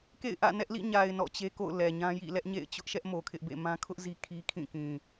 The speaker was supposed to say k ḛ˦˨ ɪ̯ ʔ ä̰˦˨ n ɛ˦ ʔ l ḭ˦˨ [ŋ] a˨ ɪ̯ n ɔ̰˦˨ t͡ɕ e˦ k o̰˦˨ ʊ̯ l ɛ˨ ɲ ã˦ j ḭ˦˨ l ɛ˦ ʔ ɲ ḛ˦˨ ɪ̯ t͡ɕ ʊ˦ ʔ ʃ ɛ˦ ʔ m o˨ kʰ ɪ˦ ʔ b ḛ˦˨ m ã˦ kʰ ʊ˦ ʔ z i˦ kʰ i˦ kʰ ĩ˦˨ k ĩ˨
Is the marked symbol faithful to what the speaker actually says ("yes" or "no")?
no